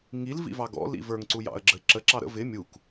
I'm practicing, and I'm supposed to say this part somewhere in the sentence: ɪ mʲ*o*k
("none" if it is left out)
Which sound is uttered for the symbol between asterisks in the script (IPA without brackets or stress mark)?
u